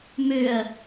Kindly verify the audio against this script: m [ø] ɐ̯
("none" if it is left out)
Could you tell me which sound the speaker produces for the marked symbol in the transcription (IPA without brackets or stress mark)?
ø